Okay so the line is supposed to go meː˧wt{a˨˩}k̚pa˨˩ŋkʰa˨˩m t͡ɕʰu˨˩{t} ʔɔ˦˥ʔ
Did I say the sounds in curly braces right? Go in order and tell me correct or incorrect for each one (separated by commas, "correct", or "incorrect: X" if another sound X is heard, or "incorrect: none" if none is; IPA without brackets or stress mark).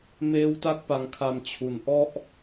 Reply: incorrect: a˦˥, incorrect: n